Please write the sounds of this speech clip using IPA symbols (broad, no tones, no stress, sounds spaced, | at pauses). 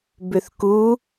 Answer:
b ʏ θ k u